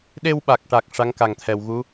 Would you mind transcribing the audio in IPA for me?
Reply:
ɗ e˧ w ɓ a˨˩ k̚ ʈ a˨˩ k̚ ʂ a˧˥ ŋ k a˨˩ ŋ t̪ʰ ɛ˨˩ w ɣ u˧˥

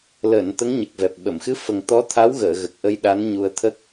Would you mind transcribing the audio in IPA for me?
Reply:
l əː˨˩˨ n t̪ ə˧˥ ŋ ɲ ə˨˩ k̚ v ɛ˨˩ p̚ ɓ ə˨˩˨ m x ɨ˧˥ f ə˨˩ ŋ t̪ ɔ˧˥ t̪ʰ a˧˥ w ɣ əː˨˩˨ ɣ ə˨˩ k̚ ʔ ə˧ j ɗ a˧˥ n ɲ u˧ ə̯ t̪ʰ ə˦˥ k̚

